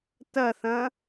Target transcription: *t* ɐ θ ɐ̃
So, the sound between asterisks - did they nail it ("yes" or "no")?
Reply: yes